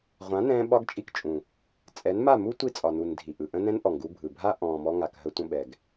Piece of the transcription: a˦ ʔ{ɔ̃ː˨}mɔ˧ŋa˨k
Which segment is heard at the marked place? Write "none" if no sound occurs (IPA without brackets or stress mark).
ɔ̃ː˨